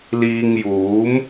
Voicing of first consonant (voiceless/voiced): voiced